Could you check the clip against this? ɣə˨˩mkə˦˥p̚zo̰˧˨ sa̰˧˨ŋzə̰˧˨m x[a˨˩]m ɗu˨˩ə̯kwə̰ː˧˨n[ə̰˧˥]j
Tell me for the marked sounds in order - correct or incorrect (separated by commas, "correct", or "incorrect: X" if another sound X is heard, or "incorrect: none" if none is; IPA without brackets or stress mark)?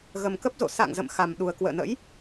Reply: correct, correct